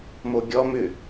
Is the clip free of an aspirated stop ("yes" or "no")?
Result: yes